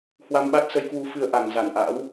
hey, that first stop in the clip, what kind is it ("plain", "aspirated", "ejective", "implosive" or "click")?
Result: implosive